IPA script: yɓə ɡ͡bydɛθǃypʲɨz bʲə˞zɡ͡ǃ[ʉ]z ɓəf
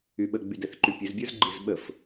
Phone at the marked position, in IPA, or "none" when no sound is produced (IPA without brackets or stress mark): ɨ